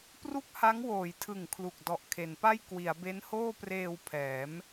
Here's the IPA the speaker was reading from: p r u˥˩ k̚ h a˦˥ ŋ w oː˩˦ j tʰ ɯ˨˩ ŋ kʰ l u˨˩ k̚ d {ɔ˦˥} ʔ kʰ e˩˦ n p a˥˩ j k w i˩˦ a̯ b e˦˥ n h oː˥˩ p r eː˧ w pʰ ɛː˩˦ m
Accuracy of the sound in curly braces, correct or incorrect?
incorrect